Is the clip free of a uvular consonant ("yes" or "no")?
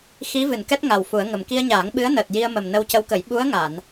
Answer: yes